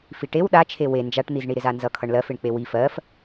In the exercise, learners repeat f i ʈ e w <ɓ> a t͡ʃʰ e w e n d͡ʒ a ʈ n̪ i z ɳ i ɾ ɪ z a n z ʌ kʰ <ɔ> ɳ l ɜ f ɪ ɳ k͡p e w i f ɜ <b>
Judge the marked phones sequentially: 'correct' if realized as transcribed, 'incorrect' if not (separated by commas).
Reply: incorrect, incorrect, incorrect